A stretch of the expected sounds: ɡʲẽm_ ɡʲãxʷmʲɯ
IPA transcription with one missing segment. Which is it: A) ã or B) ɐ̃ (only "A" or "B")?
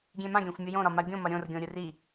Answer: A